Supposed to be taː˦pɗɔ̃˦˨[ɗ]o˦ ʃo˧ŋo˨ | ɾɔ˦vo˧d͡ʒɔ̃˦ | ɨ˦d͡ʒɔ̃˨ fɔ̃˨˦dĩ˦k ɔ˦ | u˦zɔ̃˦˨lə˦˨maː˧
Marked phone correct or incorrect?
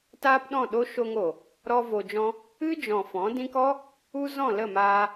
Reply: correct